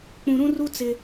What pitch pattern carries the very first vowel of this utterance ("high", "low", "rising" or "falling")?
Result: low